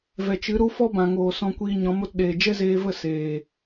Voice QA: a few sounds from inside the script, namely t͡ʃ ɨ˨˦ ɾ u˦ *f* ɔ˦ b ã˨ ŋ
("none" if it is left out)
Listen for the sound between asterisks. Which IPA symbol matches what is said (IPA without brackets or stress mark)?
f